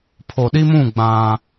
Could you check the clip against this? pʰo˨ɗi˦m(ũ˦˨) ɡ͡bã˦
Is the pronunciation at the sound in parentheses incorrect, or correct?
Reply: correct